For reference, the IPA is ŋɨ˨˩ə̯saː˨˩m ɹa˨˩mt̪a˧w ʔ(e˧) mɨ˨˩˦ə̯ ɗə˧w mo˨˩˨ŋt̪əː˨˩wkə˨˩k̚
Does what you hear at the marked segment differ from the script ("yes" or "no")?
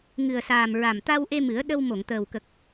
no